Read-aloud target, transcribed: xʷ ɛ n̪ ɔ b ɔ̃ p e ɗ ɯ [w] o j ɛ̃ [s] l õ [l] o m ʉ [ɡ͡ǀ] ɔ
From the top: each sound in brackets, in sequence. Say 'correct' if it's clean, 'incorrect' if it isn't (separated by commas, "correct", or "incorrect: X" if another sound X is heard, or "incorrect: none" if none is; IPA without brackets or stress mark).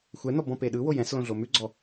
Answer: correct, correct, incorrect: ɮ, correct